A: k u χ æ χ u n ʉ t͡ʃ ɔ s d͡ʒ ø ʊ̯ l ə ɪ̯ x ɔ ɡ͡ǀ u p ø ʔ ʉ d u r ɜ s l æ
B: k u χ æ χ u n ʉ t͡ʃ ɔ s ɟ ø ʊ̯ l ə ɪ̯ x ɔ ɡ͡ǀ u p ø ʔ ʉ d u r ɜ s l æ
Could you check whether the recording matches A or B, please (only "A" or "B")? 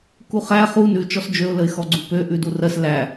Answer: A